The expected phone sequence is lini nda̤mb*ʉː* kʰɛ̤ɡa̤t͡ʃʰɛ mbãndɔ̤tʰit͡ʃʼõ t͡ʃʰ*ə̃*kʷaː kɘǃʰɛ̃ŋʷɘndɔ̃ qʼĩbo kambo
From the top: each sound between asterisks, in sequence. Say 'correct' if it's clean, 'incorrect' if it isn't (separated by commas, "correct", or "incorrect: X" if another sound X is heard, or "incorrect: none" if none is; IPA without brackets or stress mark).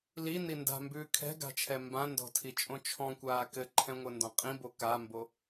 correct, incorrect: ɔ̃